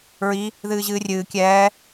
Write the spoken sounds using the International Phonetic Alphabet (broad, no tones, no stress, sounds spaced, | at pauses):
ɹ i | ð ɨː ʑ ɨː rʲ ɨː kʲ ɛː